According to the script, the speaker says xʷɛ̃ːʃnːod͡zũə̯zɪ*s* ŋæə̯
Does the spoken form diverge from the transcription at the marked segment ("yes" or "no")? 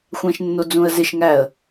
yes